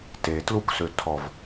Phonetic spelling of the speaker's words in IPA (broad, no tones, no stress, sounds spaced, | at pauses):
t e t l u k s ø tʰ ɔ v